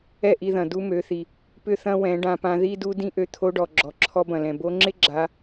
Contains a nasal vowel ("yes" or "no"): yes